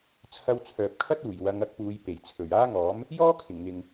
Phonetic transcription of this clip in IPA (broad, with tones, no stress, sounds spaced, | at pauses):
t͡sʰ ɐ˧ w t͡sʰ œː˨ p̚ kʰ ɐ˥ t̚ uː˨˩ j w ɐ˨˧ ŋ ɐ˨˥ k̚ p uː˨˧ j p e˨˩ j t͡sʰ ɵ˨˩ ɥ aː˥ ŋ ɔː˨˥ m | j ɔː˥ kʰ ɪ˨˩ ŋ n̪ ɪ˨ ŋ